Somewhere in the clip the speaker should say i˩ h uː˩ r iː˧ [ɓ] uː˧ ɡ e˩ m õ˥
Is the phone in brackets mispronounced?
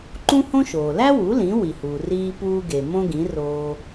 yes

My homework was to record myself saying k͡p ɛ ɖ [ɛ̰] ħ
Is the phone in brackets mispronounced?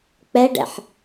no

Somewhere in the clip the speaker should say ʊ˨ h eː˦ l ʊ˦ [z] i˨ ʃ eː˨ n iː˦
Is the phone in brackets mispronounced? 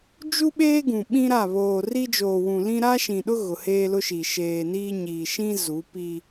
yes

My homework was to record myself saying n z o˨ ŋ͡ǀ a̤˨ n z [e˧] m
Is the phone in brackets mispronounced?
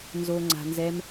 yes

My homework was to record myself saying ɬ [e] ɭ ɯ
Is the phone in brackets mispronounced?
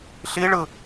yes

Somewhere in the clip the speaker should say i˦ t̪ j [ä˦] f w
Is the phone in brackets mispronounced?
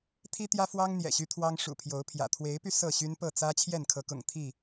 no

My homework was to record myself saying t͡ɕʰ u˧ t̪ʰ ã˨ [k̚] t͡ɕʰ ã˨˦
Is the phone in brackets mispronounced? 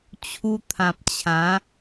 yes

